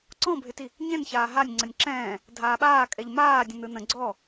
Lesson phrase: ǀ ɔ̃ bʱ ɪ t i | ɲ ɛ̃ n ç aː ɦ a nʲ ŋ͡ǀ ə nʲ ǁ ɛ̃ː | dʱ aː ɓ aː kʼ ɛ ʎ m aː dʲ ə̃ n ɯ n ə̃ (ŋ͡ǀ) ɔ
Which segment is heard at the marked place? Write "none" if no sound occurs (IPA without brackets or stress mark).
ɡ͡ǀ